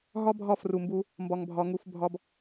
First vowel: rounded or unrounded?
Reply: rounded